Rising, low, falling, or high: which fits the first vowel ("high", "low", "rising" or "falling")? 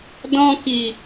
high